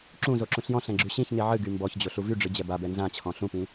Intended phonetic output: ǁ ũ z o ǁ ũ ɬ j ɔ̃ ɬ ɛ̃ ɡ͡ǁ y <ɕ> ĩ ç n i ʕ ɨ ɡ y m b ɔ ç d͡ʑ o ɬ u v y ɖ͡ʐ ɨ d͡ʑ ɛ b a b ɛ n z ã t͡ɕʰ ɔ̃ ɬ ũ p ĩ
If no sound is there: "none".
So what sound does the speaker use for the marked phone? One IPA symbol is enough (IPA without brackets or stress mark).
ɕ